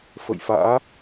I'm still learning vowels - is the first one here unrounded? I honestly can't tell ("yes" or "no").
yes